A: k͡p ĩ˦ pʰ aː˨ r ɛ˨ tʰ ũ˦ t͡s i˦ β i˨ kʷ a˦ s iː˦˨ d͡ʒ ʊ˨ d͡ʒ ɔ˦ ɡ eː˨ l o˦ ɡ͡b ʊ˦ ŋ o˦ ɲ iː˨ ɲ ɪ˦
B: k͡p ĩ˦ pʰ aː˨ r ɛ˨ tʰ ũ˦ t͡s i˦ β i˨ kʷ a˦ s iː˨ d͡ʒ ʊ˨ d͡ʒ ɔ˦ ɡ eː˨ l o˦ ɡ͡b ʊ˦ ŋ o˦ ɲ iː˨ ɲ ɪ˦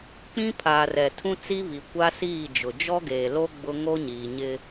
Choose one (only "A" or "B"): A